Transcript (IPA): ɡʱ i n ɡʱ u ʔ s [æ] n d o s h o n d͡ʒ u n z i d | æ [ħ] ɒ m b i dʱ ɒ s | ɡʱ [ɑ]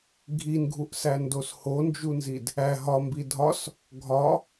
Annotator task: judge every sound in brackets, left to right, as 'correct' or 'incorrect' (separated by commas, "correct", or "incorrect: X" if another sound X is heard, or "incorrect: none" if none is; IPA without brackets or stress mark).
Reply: correct, incorrect: ɦ, incorrect: ɒ